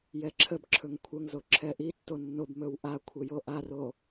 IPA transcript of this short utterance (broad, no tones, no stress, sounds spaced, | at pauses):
j ɛ ǁʰ ə b ǁʰ ɵ ŋ kʷʰ ə ŋ z o ǁʰ ɛ ʔ i tː o nː o b m ɵ w ʔ a kʷʰ ə j o ʔ a r o